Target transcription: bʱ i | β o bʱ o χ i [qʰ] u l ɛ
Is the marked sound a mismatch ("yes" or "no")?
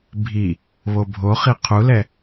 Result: no